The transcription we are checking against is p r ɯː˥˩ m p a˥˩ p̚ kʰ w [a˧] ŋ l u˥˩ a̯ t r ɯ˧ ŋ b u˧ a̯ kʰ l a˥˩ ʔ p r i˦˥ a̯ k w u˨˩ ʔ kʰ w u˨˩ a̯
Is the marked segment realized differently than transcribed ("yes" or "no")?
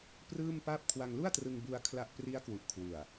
no